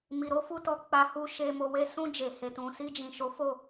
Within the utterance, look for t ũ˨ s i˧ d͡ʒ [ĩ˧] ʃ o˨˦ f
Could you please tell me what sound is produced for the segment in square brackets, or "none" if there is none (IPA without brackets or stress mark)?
ĩ˨